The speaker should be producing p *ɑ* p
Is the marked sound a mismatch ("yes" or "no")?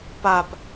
yes